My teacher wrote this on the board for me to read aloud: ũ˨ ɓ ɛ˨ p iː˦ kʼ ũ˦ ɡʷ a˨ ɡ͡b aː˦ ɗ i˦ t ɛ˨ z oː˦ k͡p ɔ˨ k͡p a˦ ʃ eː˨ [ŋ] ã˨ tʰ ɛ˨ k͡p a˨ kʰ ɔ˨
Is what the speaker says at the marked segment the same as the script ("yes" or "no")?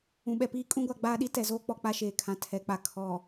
no